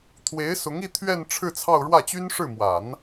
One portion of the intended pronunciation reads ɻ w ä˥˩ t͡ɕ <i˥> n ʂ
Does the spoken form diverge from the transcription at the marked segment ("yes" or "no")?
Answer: yes